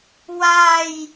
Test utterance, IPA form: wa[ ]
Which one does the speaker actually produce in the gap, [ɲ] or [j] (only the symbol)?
j